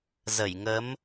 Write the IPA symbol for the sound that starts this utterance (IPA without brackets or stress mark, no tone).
z